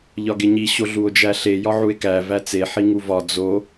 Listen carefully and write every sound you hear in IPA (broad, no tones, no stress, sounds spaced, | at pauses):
ʎ ɒ ɡ e ɲ i ɕ o ɮ u o̯ d͡ʒ æ ɬ e j ɒ ʕ u e̯ k æ v æ t͡s e ħ i ŋ u v ɒ d͡z o